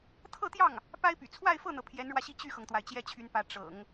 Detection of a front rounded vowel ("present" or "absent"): present